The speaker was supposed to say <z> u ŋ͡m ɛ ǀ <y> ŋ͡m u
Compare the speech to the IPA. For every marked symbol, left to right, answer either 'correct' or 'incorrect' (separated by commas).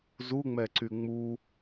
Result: correct, correct